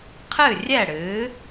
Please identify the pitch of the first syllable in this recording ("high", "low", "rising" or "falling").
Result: falling